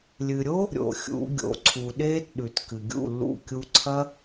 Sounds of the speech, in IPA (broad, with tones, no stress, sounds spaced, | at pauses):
lʲ ɨ˨ ɾʲ o˦ | ɾʲ o̰˨ xʲ ṵ˨˦ ɡʲ o̰˨ ǀʰ u˨ ɗ eː˦ t ɗ ʉ˨ t k ɨ˨ ɡʲ ṵ˦˨ lː ṵ˦˨ kʲ u˧ ǀʰ ɐ˦